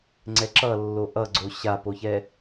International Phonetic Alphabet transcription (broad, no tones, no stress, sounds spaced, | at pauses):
ŋ͡ǀ ɛ ǁ ʌ lː o ʔ ʌ ɡ͡ǀ o ɕ a p o ç ɛ